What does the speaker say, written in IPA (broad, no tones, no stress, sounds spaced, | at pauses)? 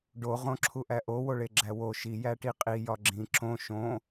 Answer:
ɖ o ʁ õ ǁʰ u ʔ æ ʔ o w o ɭ e ɡ͡ǁ æ w o ʃ i j æ ʈ i qʼ i j ɒ ɡ͡ǁ ĩ ǁ õ ʃ õ